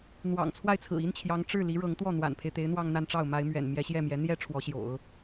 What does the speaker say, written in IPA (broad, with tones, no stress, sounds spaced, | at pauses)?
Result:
n̪ w ɑ̰˨˩ ŋ t͡sʰ w a˥˩ ɪ̯ t͡sʰ ɹ̩˨˩ i˥ n t͡ɕʰ j ɑ˧˥ ŋ ʈ͡ʂ ɻ̩˥˩ l i˧˥ ɻ ɤ˧˥ ŋ t̪ w ɔ˥˩ n̪ w a̰˨˩ n pʰ e˦ ɪ̯ t̪ e˧˥ ɪ̯ n̪ w ɑ˥˧ ŋ n̪ a˥˧ n ʈ͡ʂ ɑ˥˩ ʊ̯ m a˧˥ ɪ̯ m ɥ ɛ̰˨˩ n m j ɛ˧˥ ɕ j ɛ˥˩ m j ɛ˧˥ n̪ j ɛ˥ ʈ͡ʂʰ w ɔ˧˥ ɕ j o̰˨˩˦ ʊ̯